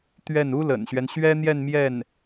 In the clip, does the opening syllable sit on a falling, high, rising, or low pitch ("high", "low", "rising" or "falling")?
falling